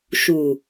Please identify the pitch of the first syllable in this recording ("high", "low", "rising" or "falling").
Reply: low